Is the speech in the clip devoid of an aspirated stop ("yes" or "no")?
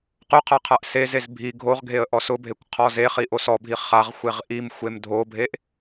no